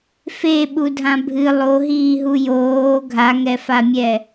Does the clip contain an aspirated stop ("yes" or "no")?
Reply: no